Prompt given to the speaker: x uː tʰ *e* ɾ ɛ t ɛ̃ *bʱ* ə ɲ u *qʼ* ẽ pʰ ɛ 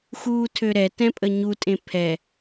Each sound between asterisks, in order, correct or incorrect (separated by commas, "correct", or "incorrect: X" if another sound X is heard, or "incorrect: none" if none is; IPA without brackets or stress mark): incorrect: ø, incorrect: pʼ, incorrect: tʼ